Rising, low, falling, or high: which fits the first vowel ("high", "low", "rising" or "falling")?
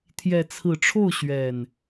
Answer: rising